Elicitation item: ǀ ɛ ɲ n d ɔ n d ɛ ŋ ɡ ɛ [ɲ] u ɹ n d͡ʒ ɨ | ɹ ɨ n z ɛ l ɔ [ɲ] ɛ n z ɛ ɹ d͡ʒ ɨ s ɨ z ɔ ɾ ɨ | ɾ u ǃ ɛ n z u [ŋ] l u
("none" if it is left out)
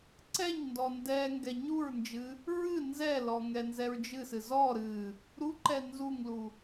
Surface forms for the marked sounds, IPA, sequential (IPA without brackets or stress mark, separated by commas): ɲ, ŋ, ŋ